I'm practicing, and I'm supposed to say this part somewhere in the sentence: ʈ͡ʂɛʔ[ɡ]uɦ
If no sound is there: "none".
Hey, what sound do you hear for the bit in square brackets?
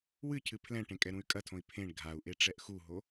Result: x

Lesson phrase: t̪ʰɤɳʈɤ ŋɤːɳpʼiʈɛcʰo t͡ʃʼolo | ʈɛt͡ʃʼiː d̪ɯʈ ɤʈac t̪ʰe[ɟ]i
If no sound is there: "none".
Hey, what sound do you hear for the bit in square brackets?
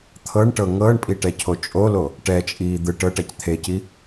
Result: c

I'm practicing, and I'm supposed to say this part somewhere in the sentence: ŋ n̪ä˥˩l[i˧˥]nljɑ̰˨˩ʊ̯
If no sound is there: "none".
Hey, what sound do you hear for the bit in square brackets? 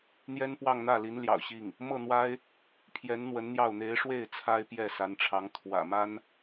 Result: i˧˥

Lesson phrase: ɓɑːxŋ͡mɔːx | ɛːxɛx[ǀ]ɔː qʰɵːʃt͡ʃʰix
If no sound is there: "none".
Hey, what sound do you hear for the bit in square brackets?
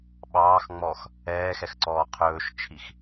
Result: ǀ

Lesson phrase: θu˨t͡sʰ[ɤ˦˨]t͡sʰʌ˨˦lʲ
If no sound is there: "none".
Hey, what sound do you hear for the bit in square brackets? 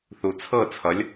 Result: ɤ˦˨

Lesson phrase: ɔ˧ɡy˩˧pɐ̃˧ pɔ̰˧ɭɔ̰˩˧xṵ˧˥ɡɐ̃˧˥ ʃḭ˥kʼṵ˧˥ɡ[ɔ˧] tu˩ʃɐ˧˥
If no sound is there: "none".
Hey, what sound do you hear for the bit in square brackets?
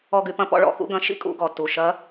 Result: ɔ˩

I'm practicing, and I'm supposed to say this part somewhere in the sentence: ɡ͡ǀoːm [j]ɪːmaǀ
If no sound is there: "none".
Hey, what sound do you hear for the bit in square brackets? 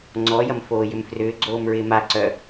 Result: ɹ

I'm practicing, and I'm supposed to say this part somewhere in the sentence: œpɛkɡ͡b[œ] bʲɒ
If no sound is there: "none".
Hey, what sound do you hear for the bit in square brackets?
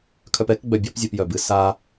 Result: œ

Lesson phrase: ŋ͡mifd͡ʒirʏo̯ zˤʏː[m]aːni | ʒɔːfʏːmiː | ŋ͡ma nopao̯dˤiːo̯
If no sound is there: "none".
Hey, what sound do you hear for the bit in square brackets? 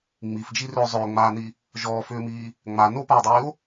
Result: ŋ͡m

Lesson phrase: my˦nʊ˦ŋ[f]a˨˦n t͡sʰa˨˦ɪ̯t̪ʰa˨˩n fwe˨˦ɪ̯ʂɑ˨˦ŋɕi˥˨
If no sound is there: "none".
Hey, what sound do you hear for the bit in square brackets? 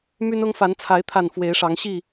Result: f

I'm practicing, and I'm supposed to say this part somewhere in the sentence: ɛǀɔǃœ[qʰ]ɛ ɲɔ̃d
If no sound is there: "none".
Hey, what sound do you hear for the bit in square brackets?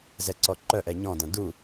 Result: ʔ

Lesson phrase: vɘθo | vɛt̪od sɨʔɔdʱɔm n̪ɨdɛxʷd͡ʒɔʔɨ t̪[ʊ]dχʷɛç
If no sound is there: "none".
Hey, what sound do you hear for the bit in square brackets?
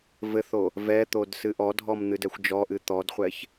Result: ɔ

